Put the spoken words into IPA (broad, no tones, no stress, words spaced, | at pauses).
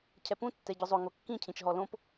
cʰɛpũtːɛ ɟʊzˤoŋo kːĩcʰĩt͡ʃɦɔ lõp